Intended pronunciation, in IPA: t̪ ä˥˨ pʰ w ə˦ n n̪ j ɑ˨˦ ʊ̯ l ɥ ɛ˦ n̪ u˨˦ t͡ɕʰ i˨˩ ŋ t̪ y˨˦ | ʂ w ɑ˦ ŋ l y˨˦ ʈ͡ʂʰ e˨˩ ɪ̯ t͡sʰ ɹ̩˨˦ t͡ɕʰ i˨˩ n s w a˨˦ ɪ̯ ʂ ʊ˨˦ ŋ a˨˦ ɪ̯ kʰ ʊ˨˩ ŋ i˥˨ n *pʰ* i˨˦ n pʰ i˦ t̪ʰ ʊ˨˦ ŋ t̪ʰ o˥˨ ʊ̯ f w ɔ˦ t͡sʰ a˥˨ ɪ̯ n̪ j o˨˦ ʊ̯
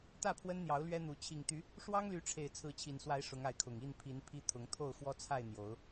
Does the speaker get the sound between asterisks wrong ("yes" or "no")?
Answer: no